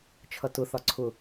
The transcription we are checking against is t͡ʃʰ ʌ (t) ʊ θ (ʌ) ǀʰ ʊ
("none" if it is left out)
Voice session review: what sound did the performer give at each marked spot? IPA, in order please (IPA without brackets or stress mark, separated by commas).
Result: t, ɒ